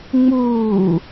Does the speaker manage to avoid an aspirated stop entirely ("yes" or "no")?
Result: yes